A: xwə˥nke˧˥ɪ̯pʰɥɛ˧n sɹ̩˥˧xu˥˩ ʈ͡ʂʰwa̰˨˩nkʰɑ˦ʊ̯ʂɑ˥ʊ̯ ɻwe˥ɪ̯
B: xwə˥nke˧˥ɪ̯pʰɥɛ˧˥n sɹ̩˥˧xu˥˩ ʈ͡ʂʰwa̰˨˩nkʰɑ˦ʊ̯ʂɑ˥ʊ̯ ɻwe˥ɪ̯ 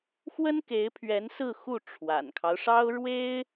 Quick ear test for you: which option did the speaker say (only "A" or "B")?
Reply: B